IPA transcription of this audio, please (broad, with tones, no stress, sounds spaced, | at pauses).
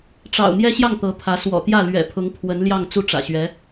ʈ͡ʂ ɑ̰˨˩ ʊ̯ n̪ j ɛ˥ ɕ j ɑ˥˩ ŋ t̪ ɤ˧˥ pʰ ä˧˥ s w ɔ̰˨˩ t̪ j ä˥˩ l ɥ ɛ̰˨˩ pʰ ʊ˧˥ ŋ pʰ w ə˧˥ n l j ɑ˥˧ ŋ t͡s u˥˩ ʈ͡ʂ ä̰˨˩ ɕ ɥ ɛ˧˥